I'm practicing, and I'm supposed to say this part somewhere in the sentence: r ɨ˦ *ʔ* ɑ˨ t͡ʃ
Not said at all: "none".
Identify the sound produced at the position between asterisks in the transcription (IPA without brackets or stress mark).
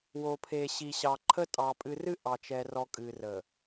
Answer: ʔ